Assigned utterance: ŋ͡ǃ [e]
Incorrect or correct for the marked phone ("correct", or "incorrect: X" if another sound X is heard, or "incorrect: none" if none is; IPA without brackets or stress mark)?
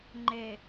correct